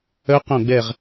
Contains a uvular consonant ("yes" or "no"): yes